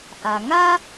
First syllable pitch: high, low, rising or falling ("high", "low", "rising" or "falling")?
low